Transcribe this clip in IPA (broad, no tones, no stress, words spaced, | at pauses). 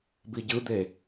biɟɯd̪e